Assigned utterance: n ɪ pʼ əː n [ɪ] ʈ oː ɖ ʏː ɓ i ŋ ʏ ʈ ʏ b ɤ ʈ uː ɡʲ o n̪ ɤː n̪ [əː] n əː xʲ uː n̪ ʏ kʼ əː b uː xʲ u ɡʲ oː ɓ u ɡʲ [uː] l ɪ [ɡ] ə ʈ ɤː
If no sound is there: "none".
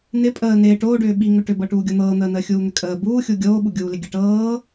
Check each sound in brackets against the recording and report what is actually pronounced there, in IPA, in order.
ɪː, əː, uː, ɡʲ

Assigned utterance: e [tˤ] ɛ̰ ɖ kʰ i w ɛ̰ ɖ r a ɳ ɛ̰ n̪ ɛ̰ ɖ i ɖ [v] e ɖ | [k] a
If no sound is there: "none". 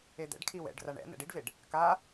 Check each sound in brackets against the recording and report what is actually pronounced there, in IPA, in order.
d̪, v, k

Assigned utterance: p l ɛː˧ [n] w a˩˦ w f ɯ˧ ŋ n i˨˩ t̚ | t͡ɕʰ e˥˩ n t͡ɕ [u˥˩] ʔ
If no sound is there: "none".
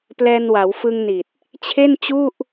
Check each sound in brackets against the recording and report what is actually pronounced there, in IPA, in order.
n, u˥˩

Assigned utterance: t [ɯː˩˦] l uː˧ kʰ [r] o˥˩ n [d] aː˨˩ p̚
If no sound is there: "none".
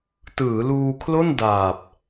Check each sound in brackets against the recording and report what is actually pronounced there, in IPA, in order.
ɯː˩˦, l, d

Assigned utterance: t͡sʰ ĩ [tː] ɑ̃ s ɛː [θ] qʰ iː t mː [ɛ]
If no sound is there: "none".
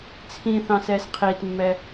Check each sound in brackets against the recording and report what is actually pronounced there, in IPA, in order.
θ, s, ɛ

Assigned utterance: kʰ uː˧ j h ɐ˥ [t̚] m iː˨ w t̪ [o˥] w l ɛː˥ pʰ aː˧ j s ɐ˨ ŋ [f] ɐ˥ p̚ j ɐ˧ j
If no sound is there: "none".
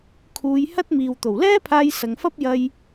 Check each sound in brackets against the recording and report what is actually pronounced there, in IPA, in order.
t̚, o˨˩, f

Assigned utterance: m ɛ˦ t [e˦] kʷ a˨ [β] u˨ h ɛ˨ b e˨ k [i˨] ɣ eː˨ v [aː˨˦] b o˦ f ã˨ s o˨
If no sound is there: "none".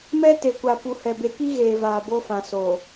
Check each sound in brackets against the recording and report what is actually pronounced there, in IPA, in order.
e˨, p, i˦, aː˨

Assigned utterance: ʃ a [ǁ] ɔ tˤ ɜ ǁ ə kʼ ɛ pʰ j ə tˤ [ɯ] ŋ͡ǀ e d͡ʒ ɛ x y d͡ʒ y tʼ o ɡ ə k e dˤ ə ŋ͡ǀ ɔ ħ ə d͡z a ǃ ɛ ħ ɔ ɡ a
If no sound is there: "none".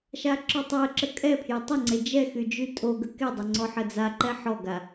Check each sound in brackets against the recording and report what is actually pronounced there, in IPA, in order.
ǁ, ə

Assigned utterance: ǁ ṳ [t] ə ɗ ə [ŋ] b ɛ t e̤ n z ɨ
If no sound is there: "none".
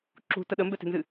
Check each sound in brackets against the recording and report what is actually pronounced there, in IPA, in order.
t, m

